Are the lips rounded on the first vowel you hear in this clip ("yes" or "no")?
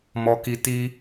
yes